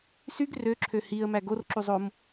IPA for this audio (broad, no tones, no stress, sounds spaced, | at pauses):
s y ɡ r ø ǁʰ ø h i ə̯ m æ ɡ o r ǁ u zˤ o m